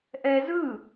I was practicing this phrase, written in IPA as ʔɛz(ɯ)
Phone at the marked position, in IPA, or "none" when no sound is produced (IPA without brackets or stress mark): ɯ